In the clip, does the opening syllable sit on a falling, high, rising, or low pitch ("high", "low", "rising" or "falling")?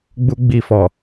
high